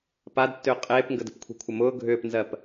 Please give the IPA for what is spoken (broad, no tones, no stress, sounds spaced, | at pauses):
p a d tː ʏː qʼ eː p ŋ ɡ ə d ə̤ p kʷʰ e̤ kʷʰ ə m ʊː ɡʱ ʏː p n z ɜ p